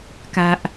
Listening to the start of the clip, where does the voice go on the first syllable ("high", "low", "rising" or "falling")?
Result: low